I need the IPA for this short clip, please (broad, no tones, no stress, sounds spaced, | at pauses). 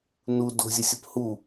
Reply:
n u d o̤ zʲ ə sʲ ə p h u